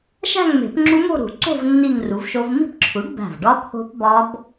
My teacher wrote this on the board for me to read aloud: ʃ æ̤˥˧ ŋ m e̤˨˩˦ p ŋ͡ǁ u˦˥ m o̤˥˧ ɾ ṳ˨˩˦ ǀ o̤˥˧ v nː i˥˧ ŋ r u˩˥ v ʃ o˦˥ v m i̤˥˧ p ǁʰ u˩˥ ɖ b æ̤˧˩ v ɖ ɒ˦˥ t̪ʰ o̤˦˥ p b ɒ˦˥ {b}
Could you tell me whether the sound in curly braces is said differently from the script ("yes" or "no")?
no